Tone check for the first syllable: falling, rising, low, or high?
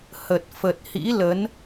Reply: low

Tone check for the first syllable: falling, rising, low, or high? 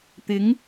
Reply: rising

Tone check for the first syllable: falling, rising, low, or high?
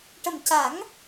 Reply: low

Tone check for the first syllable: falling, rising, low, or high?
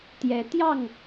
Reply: rising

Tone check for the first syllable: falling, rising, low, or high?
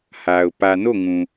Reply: low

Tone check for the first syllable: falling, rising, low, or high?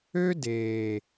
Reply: high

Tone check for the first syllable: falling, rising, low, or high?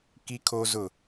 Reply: high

